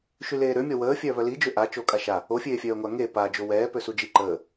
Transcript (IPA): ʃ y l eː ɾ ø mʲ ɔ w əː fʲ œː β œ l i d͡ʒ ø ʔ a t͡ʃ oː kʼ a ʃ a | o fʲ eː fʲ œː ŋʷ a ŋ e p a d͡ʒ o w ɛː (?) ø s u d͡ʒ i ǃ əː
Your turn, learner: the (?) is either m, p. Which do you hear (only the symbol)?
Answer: p